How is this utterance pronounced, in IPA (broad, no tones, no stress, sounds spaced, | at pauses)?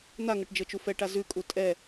n̪ a ŋ ɤ ʈ d͡ʒ ɤ t͡ʃ u f ɛ ʈ a z ʉ kʼ u tʼ ɛ